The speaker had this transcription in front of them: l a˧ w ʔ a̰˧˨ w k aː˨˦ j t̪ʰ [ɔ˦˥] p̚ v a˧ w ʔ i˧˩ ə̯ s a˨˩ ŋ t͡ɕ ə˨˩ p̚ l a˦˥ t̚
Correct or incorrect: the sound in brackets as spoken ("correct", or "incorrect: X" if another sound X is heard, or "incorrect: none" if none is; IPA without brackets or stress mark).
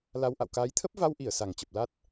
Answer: incorrect: ə˦˥